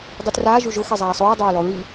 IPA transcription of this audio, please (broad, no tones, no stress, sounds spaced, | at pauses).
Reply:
dˤ u t r aː ʒ u ʒ ʊ x e zˤ aː sˤ ʊː j dˤ ʊː i̯ l ɔ ɹ i